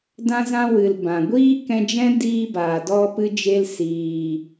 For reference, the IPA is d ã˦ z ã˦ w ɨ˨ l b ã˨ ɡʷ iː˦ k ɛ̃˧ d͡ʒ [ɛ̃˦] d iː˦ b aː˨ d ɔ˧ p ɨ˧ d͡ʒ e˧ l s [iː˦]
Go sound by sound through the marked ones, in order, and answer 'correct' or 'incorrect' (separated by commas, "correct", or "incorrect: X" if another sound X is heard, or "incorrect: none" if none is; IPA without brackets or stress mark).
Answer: correct, incorrect: iː˨